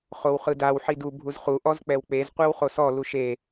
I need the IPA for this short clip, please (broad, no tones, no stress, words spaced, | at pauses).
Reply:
χowχɯdaw ħidu bʱuzχu ʔɔzk͡pɛwk͡pez qʷewχosɔ luʃe